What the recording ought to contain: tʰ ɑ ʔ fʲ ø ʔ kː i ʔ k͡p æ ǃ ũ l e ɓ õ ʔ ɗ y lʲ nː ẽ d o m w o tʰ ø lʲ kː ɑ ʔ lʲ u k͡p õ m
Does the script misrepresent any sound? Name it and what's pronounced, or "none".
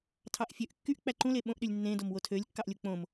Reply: i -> y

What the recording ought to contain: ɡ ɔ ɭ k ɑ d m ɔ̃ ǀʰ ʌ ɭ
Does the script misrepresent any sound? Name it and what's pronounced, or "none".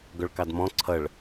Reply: none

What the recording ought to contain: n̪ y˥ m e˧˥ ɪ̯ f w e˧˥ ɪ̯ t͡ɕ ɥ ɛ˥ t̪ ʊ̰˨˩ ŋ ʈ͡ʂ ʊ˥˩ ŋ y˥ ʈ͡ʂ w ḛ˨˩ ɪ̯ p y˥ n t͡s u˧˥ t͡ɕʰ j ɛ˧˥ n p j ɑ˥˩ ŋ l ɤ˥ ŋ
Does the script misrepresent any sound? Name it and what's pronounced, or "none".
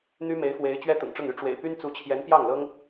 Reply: none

